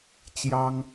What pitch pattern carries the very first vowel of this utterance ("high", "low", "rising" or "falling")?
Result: high